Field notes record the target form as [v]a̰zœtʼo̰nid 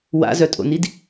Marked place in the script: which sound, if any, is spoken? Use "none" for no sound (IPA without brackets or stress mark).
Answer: w